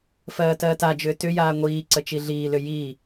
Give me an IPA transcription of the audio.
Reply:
fɜːtɜːtad͡ʒʏː tʏjaː ŋʷiː ǀət͡ʃiɮiːlʏ ji

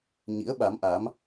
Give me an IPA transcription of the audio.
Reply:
ɲḭ˧˥ə̯ɓa˨˦mʔa˨˦m

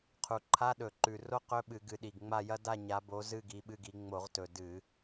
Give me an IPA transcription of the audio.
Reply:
qʰu˨˩ǃʰa˧˥˧ɗɵ˧˩˧ǃʉ˨˩ ro˥qɵ˧˥˧ɓɨ˧˩˧ ɡɨ˨˦ɗi˨˩ɡŋ͡ma˥˧jɐ˥ da˥˧ ɲa˨˦bo˨˦ zɨ˥˧ɡi˨˦ɓɨ˧˥˧ɡi˨˦ ŋ͡mo˧˩˧ʁtɵ˨˩ dɨ˧˩˧

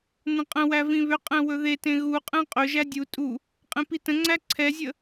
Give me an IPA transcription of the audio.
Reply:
nə̃qʼə̃wæ vĩβʏqʼɛ̃ wɵðetẽ ɣuqʼɛ̃ qʼɵʒæ dʲu tʼu | qʼẽpitə̃ŋ͡ǀæ ǀʰɛzʲə

